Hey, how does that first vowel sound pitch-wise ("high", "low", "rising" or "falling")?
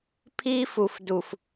high